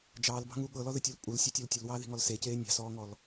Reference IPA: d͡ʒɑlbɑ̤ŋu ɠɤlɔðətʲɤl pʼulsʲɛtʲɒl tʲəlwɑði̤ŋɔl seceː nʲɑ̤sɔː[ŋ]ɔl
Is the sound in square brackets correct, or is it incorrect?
correct